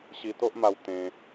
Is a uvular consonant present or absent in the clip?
absent